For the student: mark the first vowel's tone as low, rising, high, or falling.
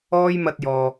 high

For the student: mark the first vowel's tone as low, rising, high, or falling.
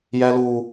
high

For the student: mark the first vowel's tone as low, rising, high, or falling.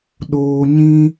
high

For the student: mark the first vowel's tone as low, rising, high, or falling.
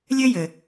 high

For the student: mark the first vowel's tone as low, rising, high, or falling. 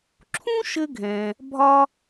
high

